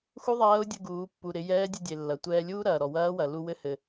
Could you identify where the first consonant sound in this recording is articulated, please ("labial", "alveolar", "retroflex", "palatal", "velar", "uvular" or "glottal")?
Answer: velar